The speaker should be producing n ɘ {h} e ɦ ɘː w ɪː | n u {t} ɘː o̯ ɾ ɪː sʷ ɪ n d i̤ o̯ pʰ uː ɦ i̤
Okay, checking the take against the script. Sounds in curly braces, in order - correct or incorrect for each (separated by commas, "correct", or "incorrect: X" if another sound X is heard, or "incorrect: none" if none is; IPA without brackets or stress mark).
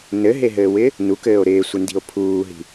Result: incorrect: ɦ, incorrect: k